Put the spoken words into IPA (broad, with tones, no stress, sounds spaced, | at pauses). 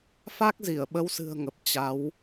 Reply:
f a˦˥ k̚ z i˧˩ ə̯ ɓ ə˨˦ w s ɨ̤˨˩ ə̯ ŋ ə˨˩ p̚ t͡ɕ a˨˦ w